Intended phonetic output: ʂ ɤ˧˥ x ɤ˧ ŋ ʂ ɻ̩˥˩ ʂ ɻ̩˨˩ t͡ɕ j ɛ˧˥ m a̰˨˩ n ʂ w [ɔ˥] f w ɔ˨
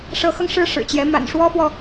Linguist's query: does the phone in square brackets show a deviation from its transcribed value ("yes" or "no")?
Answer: no